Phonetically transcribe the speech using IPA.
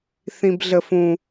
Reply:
θ ĩ b ɮ ə f ũ

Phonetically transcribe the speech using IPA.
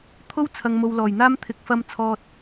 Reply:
t̪ʰ o˥ w t͡sʰ ɐ˨ ŋ m o˨ w l ɔː˨˩ j n̪ aː˥ m t̪ʰ ɪ˧ k̚ f ɐ˥ m t͡sʰ ɔː˧ t̚

